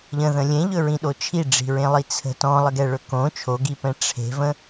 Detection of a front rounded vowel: absent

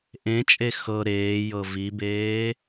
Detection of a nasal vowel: present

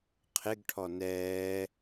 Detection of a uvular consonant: present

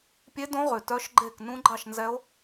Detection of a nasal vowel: present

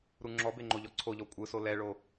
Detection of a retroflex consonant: present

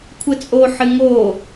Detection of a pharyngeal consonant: present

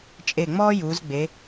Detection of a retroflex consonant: absent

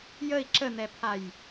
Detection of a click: present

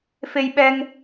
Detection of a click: absent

